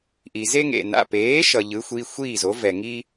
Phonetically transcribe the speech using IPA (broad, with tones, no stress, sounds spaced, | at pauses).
ʔ i˩ z e˦ ŋ ḛ˩ n a̰˩˧˩ p eː˩˥ ʃ ʌ˩ ʎ ɯ˩˥ xʷ i˩˧˩ xʷ iː˥˩ z o˩˥ v ɛ˩ ŋ i˦